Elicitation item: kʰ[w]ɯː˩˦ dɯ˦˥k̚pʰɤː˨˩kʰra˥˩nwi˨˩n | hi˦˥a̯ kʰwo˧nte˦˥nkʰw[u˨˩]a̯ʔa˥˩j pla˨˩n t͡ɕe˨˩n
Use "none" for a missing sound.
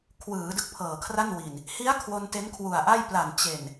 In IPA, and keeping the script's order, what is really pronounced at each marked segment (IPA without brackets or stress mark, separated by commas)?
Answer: w, u˨˩